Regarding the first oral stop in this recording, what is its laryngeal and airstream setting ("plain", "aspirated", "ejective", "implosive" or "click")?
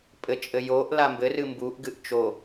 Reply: ejective